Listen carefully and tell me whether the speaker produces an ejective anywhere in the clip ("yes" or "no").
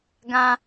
no